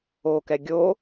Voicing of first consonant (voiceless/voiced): voiceless